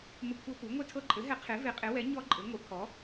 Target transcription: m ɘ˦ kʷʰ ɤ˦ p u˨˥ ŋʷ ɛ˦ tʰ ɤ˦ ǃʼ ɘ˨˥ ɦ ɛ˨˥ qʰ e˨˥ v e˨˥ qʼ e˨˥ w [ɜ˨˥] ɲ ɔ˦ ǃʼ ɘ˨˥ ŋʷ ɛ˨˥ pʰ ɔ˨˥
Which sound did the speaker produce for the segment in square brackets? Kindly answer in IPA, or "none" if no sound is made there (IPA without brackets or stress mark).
ɛ˨˥